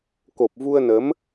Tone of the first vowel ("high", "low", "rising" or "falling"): low